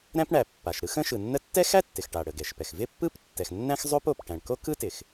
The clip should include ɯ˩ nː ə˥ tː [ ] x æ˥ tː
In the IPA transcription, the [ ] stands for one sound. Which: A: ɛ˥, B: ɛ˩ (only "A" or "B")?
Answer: A